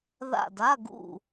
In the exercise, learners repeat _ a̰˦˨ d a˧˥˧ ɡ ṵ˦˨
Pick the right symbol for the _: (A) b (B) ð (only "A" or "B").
B